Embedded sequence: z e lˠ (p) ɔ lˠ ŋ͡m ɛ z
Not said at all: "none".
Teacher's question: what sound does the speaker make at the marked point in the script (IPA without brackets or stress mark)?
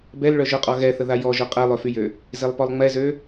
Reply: p